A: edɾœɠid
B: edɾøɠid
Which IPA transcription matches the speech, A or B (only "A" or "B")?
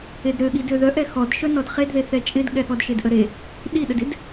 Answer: B